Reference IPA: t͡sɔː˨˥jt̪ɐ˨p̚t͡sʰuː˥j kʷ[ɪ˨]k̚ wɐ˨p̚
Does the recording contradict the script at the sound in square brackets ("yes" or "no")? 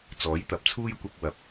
yes